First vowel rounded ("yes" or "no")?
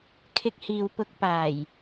no